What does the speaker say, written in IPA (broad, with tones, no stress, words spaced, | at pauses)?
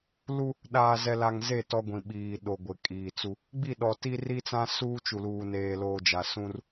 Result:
lu˦ | ɗaː˨zɛ˨ la˨ŋze˦˨ tɔ˦ɡʷĩ˨ɓiː˨ ɗo˨ɡʷɪ˨kʼiː˨t͡su˦ | ɡ͡bi˦˨ɗɔ˨ti˦ ri˦t͡sã˦ suː˦ t͡ʃu˨luː˨ neː˨loː˨d͡ʒa˨ sũ˦r